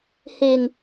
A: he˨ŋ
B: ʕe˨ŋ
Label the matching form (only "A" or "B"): A